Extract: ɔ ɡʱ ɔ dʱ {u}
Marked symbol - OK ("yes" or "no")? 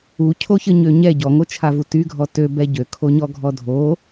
no